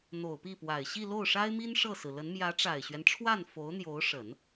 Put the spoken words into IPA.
n̪o˨˩ʊ̯pi˥˩pwa˨˩ɪ̯ ɕi˥˧lo˥˩ʊ̯ʂa˥ɪ̯mi˥n ʂɤ˥˩sɹ̩˩lə˧˥n mjä˧˥ʈ͡ʂa˨˩ɪ̯ɕɥɛ˦nʈ͡ʂʰwa˥˩n fo˧˥ʊ̯n̪jo˧˥ʊ̯ʂə˨˩˦n

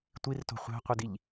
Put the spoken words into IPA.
tʷirto̤ χʷæ̤qʷɯdiʎ

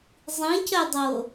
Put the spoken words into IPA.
zˤĩcœdˤo

